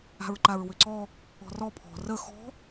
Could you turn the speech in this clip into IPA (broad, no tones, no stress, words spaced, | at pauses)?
a̤ɹǃaɹwʏǀɔ | ɔ̤rɔ pʰɔ̤ rə xɔ̤